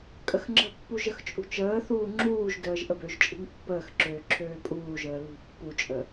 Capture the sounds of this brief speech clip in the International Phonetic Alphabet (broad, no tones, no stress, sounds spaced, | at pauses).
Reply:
kʼ ə x ŋ͡ǁ ə̤ pː u ʒ ə x t͡ʃʼ ṳ t͡ʃ əː θ uː ŋ͡ǁ uː ʒ d əː ʒ ʔ ə b ø ʒ t͡ʃʼ i̤ ŋ pː əː x ǁ øː ǁʰ øː pʼ uː ʒ əː l ṳ pː u t͡ʃʼ ə